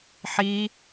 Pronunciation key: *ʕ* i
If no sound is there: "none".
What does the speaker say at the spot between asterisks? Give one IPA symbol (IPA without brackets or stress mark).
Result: ħ